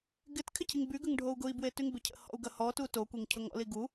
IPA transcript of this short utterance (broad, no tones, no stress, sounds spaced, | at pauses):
ɡ ɪ t kʰ ɪ cʰ i ŋ b y ɡ ə ŋ ɖʱ o u̯ ɡ ʊ i̯ b w e t y ŋ b ɪ cʰ ə̰ h ɔ̰ u̯ ɡ ɐ h ɔ t u t o kʷ e ŋ cʰ ʊ ŋ ɔ̰ l i ɡ u